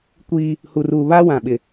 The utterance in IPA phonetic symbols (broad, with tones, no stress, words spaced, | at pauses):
kʷiː˦ | hu˨ruː˨ βaː˦wã˨ɓɪ˨